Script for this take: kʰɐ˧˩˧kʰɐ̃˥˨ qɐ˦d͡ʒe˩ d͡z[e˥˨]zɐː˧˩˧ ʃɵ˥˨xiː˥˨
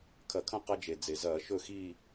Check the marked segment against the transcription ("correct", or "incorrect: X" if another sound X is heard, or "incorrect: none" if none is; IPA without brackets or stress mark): incorrect: e˩